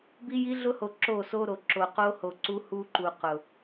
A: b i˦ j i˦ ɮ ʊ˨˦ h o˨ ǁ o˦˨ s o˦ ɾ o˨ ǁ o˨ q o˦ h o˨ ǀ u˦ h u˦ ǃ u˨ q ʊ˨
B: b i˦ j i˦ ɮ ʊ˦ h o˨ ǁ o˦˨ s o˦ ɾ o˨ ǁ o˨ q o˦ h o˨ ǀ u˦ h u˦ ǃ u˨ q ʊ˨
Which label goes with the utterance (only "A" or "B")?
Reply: B